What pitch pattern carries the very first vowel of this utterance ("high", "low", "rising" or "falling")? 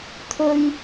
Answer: high